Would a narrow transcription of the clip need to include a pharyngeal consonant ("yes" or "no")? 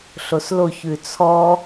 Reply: no